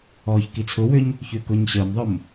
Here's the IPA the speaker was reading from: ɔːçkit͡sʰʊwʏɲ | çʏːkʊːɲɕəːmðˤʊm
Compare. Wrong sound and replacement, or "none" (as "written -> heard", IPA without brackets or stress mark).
none